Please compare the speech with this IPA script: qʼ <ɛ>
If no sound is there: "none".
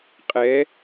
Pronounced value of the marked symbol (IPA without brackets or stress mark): ɛ